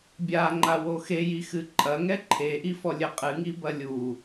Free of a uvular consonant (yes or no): no